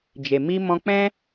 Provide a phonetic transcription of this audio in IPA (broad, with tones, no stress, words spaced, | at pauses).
d͡ʒe˨ mi˧ mɔ̃˧k͡pɛ̃˦